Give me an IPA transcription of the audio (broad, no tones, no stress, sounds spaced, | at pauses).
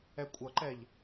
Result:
ɛ kʷʼ ʌ ǃ ɛ ʎ